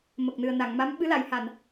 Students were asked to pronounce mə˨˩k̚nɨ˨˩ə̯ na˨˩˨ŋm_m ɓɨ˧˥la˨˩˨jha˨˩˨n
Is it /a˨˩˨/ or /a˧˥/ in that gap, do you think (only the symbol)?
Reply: a˧˥